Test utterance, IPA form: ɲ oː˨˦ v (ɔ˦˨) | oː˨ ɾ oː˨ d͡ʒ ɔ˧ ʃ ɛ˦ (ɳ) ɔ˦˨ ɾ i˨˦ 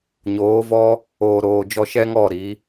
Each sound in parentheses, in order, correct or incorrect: incorrect: ɔ˦, incorrect: ŋ

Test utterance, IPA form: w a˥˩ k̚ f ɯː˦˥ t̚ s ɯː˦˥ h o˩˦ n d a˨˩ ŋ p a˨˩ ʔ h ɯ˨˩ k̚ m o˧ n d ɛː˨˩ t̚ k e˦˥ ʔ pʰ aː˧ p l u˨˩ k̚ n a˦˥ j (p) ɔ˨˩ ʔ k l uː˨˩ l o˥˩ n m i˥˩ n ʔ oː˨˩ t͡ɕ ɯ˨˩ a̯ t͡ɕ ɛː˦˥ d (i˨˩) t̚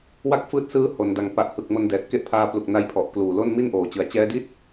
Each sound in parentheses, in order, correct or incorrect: incorrect: pʰ, incorrect: i˥˩

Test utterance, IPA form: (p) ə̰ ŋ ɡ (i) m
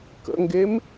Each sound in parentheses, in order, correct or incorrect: incorrect: k, incorrect: e

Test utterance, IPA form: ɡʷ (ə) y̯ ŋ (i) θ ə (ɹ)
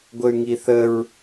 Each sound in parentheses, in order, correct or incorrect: correct, correct, correct

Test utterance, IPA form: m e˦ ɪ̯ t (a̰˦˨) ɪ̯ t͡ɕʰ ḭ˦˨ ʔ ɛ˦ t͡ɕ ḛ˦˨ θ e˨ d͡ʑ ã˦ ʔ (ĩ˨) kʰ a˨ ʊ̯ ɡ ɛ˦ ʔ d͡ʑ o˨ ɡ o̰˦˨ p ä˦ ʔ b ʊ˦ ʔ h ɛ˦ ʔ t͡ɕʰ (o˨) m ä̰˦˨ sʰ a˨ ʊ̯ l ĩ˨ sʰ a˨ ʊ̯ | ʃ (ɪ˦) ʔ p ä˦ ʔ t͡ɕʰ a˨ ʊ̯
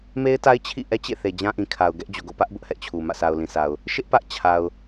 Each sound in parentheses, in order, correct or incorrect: incorrect: a˦, correct, incorrect: u˨, correct

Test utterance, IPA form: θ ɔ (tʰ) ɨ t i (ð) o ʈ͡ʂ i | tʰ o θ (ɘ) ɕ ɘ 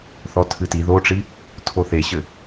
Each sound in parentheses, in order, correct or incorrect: correct, correct, incorrect: e

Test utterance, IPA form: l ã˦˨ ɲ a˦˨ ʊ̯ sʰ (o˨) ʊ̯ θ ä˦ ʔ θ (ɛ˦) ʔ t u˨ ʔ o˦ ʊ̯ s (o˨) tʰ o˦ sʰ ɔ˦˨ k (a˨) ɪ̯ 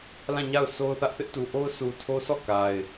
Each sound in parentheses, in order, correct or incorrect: incorrect: o˦, incorrect: ɪ˦, incorrect: u˨, correct

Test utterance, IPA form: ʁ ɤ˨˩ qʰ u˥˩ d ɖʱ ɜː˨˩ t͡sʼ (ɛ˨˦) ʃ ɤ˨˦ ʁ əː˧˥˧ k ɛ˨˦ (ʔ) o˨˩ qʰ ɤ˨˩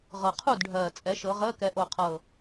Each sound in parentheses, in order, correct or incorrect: correct, correct

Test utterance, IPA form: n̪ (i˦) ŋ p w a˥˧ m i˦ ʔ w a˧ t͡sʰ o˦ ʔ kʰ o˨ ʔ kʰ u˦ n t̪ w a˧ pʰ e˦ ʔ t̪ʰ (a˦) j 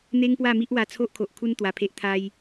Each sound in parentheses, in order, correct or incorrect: incorrect: e˦, correct

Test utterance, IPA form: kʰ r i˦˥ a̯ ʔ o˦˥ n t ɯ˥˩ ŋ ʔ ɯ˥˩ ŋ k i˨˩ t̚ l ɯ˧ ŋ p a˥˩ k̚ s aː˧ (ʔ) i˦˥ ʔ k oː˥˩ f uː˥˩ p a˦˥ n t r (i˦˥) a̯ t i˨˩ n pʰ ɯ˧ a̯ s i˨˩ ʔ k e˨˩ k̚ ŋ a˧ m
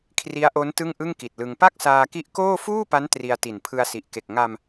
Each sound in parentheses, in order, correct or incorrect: incorrect: k, incorrect: i˧

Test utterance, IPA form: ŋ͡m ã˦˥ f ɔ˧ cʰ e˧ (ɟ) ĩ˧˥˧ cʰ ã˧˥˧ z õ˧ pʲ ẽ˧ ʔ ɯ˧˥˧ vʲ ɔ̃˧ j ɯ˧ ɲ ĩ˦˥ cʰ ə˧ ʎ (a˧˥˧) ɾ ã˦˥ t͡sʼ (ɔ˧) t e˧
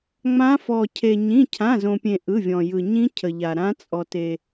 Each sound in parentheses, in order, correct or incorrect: incorrect: ɲ, incorrect: a˧, correct

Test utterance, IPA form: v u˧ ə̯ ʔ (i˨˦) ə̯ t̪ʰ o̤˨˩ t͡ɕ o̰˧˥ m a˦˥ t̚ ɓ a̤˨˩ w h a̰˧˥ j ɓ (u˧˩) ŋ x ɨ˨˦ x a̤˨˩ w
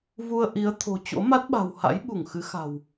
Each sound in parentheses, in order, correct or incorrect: correct, correct

